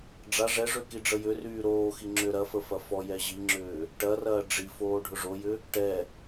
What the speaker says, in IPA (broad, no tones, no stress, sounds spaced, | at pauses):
ɖ͡ʐ a ʐ ɛ ʐ ø k i ɖ͡ʐ ə j ʏ r yː ɾ oː x i ŋ͡ǁ ʏː ɾ ɐ f ə f ɐ f ɔ j ɛ ʑ i ŋ͡ǁ ʏː | ʈ ɐ r ɐː ɖ͡ʐ i f oː ɖʱ ʊ ʐ o j ʏ | ʈ ɛ